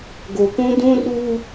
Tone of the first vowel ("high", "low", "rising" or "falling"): low